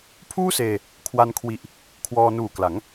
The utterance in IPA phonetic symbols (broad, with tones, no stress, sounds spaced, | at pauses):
pʰ uː˥˩ s eː˧ | kʰ w a˧ n kʰ w i˨˩ ʔ | kʰ w ɔː˧ n uː˨˩ k l a˩˦ ŋ